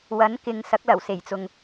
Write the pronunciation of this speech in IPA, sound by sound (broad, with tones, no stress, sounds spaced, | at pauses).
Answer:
w ɐ˨˥ n k ɪ˨ ŋ s ɐ˨˥ k̚ l ɐ˨˩ w s e˨˩ j t͡s ʊ˨ ŋ